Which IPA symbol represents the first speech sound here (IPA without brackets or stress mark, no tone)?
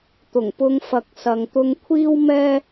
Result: t̪